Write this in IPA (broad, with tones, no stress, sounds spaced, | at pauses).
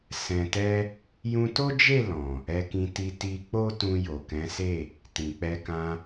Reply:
s ɛ̃˨ t ɛ˧ | j ũ˧ t o˦ d͡ʒ e˦˨ l ɔ̃˨ | ɛ˧ k ĩ˧ t i˧ t i˧ k͡p o˦ t ũ˧ j o˨ k ɛ̃˨˦ s e˦˨ | t ĩ˨ k͡p ɛ˧ k ã˧